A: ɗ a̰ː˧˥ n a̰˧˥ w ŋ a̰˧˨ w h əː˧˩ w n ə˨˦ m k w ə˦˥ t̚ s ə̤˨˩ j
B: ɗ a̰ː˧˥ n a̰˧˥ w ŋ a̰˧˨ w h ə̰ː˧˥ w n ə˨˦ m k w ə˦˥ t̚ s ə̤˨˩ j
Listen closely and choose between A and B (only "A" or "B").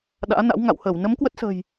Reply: A